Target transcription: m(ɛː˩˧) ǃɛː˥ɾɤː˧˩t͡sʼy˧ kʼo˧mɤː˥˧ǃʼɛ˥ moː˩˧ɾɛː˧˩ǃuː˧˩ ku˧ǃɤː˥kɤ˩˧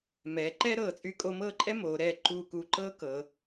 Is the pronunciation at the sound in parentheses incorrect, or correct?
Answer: correct